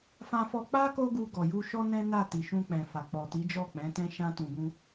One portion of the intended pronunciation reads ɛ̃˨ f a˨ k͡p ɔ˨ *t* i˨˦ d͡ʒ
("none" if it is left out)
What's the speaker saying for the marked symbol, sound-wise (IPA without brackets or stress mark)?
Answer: t